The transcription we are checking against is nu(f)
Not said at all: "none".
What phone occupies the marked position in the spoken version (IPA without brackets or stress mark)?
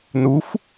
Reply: f